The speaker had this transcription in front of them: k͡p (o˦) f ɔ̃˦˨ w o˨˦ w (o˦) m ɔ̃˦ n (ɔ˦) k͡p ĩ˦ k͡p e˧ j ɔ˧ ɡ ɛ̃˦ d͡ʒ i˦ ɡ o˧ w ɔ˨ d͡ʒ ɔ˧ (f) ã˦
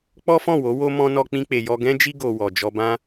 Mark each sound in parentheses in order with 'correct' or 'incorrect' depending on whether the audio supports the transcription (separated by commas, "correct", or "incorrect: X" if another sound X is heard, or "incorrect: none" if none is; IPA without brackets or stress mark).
incorrect: ɔ˦, correct, correct, incorrect: b